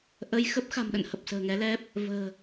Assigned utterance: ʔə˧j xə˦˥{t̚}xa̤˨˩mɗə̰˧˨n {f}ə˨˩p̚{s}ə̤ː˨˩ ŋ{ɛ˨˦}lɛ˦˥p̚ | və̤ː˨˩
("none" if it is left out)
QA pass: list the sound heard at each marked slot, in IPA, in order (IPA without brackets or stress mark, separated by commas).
p̚, h, s, ɛ˨˦